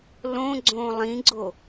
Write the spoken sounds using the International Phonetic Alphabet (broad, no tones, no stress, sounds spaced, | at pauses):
l õ ɡ͡ǀ õː lˠ ĩ ɡ͡ǀ o